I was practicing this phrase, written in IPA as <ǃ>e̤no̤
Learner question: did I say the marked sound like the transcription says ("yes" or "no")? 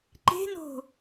yes